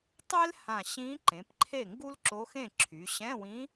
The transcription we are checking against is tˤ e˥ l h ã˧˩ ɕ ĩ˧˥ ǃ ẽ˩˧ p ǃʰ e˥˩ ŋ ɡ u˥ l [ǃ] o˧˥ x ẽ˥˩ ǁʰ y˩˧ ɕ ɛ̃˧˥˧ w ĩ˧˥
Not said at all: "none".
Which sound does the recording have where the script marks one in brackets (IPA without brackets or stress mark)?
ǁ